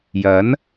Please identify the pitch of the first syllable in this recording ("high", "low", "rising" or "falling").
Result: rising